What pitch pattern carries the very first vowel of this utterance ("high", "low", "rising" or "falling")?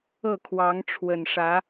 falling